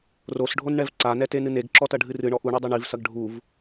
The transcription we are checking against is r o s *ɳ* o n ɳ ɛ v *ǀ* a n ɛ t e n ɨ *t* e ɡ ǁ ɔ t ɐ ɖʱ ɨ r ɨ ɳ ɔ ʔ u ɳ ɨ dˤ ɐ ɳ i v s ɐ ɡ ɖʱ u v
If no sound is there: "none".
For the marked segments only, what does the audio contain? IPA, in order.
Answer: ɖʱ, ǀ, n

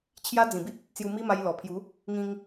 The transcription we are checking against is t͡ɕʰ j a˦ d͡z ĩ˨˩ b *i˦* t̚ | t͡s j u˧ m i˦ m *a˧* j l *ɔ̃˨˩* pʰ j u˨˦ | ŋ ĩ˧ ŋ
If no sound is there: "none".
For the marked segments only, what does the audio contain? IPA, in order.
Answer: i˦, a˧, ɔ˨˩

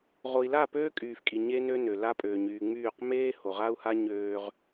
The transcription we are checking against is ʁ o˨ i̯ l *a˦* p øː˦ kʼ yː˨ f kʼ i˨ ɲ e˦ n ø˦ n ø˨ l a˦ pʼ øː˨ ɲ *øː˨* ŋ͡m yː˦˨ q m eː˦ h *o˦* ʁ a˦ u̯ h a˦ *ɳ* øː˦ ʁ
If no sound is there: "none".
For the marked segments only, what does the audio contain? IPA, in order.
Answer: a˦˨, yː˨, o˨, ɲ

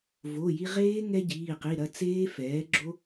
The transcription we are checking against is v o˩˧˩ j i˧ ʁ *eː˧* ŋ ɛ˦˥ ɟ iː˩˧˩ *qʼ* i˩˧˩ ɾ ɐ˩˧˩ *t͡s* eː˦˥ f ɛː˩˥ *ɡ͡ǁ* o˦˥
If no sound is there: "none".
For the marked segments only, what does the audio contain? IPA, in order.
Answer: eː˦˥, q, t͡s, ɡ͡ǁ

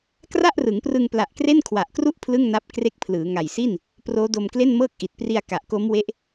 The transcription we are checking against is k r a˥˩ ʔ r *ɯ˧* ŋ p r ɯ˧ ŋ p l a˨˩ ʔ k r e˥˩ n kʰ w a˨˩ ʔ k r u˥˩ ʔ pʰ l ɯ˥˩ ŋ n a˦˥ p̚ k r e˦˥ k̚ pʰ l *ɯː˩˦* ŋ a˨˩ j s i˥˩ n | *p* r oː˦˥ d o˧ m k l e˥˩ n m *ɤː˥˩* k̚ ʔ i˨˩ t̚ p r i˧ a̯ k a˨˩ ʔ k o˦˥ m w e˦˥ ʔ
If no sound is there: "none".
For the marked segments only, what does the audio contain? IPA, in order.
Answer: ɯ˩˦, ɯː˩˦, p, ɤː˥˩

